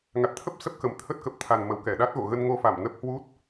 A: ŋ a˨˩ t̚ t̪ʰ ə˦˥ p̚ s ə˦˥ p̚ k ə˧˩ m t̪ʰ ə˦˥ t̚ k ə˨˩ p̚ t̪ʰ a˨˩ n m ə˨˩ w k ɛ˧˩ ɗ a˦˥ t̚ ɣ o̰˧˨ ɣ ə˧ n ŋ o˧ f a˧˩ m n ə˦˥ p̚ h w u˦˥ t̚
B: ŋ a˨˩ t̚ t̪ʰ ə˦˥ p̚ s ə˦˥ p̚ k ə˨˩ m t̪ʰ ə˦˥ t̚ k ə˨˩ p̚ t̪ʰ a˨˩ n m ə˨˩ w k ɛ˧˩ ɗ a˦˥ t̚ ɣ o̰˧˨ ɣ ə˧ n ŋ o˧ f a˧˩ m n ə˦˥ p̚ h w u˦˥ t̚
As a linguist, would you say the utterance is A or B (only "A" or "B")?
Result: B